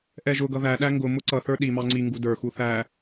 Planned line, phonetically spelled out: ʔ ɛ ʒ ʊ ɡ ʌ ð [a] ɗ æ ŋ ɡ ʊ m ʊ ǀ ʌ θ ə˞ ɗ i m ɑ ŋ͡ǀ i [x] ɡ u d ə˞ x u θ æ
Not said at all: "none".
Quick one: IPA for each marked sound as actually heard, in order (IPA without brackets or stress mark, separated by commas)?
æ, ŋ